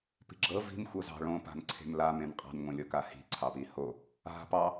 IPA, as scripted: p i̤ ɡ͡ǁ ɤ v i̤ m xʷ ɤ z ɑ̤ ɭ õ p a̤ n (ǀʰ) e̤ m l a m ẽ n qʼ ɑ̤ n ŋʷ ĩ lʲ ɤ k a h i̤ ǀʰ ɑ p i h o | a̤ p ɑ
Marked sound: correct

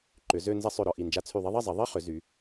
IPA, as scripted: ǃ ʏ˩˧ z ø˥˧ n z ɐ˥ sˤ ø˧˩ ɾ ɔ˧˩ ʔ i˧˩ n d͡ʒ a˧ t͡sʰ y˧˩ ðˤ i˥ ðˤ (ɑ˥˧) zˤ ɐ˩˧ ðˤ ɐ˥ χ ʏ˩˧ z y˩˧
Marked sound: incorrect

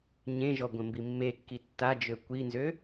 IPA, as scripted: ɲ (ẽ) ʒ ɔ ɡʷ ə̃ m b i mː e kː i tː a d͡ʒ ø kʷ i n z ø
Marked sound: correct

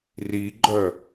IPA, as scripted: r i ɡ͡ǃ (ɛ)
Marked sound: incorrect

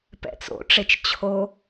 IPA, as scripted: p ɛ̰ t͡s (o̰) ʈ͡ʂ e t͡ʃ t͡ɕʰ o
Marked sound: correct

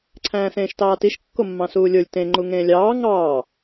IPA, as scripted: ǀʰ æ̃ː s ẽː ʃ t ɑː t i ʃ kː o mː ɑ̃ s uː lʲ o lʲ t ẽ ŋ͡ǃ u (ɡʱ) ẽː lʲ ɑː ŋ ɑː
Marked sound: incorrect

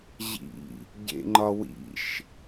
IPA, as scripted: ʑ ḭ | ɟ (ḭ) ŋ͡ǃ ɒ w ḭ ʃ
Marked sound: incorrect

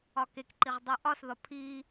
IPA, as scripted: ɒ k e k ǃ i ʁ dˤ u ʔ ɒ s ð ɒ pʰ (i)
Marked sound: correct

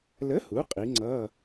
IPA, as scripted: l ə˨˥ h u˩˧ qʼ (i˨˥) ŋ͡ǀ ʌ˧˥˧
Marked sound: correct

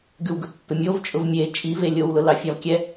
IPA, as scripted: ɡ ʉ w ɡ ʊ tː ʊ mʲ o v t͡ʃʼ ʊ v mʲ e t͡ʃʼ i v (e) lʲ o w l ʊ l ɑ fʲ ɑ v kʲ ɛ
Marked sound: correct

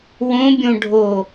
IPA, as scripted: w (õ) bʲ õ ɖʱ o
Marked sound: correct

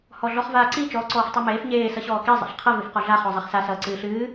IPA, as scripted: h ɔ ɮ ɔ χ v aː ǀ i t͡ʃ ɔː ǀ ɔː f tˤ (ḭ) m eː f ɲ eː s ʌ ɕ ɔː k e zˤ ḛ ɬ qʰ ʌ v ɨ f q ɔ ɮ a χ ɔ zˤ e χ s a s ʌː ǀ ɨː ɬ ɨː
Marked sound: incorrect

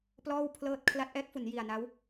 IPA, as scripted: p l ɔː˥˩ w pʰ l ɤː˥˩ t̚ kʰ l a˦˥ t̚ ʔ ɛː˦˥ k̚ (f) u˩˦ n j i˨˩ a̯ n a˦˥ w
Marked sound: correct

